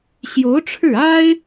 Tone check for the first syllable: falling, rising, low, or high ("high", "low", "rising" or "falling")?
rising